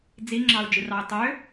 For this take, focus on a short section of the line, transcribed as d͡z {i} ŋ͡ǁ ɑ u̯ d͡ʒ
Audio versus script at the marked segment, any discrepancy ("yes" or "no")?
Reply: no